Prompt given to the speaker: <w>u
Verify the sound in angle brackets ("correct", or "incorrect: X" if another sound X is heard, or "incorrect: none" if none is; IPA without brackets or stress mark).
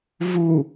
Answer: incorrect: v